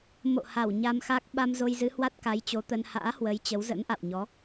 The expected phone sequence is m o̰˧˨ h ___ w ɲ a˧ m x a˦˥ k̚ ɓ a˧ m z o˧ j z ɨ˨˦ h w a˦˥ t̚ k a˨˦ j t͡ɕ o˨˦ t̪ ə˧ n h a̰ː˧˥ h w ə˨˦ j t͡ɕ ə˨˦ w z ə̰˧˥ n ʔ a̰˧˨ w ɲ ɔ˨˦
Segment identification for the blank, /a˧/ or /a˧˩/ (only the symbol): a˧˩